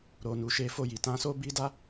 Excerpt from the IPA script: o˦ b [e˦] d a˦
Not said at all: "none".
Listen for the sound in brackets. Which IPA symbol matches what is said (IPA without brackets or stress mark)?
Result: i˦